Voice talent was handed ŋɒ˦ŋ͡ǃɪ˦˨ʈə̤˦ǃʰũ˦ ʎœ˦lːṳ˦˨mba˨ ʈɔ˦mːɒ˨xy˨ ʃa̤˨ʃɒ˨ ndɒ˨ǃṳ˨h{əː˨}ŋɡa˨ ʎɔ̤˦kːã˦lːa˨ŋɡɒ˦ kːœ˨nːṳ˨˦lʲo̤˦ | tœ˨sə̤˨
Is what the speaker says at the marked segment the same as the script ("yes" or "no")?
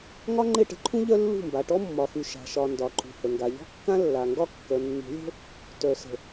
no